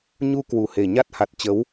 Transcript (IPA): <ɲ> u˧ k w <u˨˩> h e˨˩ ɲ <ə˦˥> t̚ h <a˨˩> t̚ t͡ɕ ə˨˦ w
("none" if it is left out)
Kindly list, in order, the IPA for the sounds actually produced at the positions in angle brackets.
ɲ, u˨˩, a˦˥, a˨˩

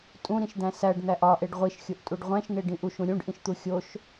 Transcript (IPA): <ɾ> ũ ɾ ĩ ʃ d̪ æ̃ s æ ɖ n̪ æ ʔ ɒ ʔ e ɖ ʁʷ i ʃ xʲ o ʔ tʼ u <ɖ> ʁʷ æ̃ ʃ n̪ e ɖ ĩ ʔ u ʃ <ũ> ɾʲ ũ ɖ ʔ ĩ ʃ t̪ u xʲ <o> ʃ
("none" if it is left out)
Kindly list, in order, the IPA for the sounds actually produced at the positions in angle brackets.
tʼ, ɖ, ũ, o

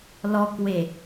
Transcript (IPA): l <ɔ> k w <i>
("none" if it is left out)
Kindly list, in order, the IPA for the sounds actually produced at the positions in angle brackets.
ɔ, e

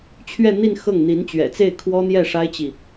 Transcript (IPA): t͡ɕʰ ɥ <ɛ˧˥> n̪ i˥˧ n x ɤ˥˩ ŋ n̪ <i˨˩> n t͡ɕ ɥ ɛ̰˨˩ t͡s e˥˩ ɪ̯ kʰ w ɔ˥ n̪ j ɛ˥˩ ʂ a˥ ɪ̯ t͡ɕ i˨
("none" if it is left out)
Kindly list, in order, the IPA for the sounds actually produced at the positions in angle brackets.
ɛ˥˧, i˧˥

